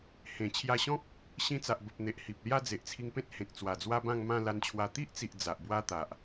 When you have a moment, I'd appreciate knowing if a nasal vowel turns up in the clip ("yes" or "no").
yes